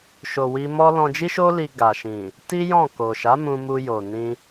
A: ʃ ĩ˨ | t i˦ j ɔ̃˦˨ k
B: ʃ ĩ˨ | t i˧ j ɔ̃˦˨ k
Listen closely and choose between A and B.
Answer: A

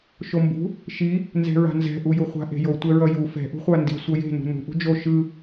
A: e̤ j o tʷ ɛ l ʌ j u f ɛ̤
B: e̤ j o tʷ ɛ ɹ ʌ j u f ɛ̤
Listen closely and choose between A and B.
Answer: B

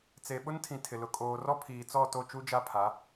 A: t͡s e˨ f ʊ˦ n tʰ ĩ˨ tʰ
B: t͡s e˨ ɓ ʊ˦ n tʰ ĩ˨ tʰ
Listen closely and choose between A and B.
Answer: B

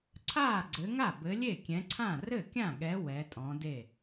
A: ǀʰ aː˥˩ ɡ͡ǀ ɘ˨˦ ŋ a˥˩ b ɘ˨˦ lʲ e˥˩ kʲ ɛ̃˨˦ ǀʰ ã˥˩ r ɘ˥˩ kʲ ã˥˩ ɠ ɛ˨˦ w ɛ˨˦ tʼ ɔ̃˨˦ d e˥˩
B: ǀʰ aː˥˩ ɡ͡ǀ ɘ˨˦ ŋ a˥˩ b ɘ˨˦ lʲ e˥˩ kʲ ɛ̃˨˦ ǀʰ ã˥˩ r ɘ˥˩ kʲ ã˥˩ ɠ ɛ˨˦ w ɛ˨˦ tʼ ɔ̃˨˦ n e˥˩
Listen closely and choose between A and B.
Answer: A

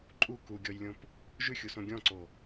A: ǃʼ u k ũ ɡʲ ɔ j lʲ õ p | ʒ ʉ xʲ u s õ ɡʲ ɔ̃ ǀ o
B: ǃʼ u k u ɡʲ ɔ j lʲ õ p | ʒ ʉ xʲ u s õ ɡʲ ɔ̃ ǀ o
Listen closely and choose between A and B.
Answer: B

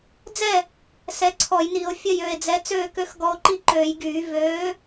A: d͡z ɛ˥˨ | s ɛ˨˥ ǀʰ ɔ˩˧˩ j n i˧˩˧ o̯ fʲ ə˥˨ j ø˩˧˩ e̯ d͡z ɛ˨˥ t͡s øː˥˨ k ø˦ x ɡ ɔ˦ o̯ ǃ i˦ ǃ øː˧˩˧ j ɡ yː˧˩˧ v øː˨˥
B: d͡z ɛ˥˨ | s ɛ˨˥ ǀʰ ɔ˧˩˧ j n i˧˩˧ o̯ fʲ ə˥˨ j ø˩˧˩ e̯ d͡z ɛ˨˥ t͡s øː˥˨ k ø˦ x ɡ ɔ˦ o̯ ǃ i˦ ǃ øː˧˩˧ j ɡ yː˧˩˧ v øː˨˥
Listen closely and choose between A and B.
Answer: B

